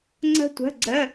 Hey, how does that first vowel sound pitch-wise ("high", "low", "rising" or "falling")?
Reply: high